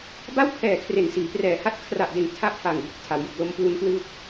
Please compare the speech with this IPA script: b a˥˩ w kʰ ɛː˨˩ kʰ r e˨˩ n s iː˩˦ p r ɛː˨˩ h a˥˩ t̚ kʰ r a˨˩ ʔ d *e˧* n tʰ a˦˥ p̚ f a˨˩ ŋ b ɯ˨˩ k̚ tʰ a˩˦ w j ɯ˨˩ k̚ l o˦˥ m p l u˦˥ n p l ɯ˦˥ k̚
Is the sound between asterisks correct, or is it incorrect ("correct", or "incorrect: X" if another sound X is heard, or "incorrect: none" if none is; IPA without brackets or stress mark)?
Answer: incorrect: e˨˩